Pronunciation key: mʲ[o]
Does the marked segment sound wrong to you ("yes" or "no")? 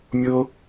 no